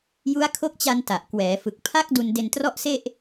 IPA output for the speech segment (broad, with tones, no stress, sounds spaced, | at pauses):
j u˦˥ a̯ kʰ o˦˥ k̚ t͡ɕ a˧ n t a˨˩ ʔ k w ɛː˩˦ f ɯ˨˩ k̚ pʰ a˦˥ k̚ d u˧ n d e˧ n t r ɔ˥˩ ʔ s e˥˩ ʔ